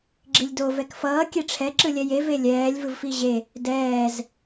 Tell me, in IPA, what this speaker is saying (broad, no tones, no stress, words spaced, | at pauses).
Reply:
ɡ͡ǁilʲdo vɛkfʌː kʲeʈ͡ʂʰɛ ǁɯlʲɛje velʲɛːlʲ vɯvfiʑe | dɛːz